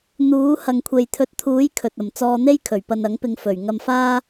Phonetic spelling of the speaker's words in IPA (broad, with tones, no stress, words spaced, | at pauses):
n̪uː˨˥ hɐ˨ŋkʷʰe˨jt̪ʰɵ˨˥t̚t̪ʰuː˨˥j kʰɵ˨t̚ɐ˨˩m t͡sɔː˧n̪e˥j kʰɵ˨˩ɥpɐ˧nɐ˨˥ŋpɪ˧ŋ fɵ˨˩ɥ ŋɐ˧mfaː˥